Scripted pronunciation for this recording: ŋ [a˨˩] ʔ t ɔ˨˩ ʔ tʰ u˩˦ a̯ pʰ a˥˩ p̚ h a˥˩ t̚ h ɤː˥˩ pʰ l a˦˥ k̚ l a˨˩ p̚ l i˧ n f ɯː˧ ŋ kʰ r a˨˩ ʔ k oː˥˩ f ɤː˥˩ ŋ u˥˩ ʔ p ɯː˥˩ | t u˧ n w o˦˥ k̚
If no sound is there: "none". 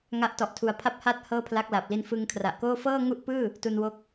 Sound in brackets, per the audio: a˦˥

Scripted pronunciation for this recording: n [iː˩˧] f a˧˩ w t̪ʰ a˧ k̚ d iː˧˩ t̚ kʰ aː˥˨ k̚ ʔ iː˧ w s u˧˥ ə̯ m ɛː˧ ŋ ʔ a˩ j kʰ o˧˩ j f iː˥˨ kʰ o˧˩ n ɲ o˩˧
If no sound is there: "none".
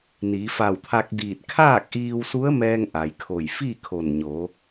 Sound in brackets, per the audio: iː˩˧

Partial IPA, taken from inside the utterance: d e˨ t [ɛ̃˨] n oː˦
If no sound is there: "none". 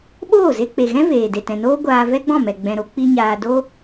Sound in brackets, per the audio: ɛ̃˨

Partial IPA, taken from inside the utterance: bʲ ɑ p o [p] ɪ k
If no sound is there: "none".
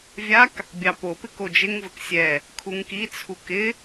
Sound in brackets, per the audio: p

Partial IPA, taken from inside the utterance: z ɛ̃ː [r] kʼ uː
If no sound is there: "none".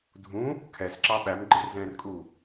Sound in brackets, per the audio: r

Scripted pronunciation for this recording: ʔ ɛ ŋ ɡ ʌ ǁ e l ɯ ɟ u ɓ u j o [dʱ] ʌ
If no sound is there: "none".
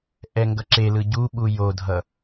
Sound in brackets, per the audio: dʱ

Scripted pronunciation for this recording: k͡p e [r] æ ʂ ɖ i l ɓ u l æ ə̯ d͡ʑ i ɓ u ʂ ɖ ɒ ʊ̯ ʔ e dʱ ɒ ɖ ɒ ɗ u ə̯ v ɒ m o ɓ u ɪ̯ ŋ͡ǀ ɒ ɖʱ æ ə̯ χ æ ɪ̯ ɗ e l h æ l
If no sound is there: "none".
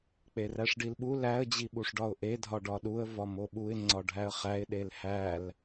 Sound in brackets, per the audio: r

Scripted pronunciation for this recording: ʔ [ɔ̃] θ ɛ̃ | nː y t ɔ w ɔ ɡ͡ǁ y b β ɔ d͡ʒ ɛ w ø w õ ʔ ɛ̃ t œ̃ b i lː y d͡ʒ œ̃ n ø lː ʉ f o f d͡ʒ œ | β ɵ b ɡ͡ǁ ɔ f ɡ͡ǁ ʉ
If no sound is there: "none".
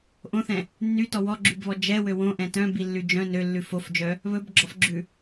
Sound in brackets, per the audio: õ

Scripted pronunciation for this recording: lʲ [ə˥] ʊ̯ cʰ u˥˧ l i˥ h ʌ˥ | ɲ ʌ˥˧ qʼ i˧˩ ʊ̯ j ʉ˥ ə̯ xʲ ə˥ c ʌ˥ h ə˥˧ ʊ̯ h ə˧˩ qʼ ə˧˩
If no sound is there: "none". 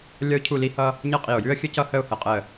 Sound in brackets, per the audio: ʌ˥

